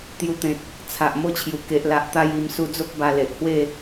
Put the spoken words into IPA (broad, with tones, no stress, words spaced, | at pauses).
t̪ju˧t̪ẽ˨t̚ | t͡sʰa˨ʔ mo˦t͡ɕʰju˨˩ ke˨ʔla˨ʔ t̪a˥˧ji˧m su˧d͡zo˦k̚ ba˧le˨ʔhwe˥˧